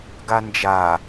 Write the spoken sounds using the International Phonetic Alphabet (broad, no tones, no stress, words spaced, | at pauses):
ɡand͡ʒa